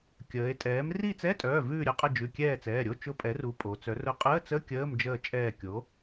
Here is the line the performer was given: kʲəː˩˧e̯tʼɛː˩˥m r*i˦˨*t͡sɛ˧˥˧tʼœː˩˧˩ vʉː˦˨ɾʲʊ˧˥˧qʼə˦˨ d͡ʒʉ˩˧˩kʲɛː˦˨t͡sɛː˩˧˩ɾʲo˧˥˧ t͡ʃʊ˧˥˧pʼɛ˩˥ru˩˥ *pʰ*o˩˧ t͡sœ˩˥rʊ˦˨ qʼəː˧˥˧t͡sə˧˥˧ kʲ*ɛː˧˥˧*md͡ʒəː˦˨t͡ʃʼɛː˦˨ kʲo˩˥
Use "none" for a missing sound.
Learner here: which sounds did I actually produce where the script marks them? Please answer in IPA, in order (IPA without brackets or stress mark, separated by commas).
i˦˨, pʼ, əː˧˥˧